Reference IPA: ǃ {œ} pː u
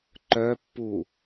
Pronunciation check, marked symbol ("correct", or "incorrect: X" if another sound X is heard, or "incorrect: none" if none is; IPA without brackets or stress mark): correct